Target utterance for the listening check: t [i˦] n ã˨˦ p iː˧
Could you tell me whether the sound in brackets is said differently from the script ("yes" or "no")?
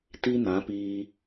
no